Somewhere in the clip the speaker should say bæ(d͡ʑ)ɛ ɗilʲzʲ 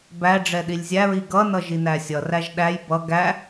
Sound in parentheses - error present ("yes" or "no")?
yes